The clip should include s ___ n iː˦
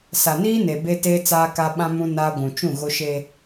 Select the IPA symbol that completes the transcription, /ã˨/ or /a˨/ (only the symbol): a˨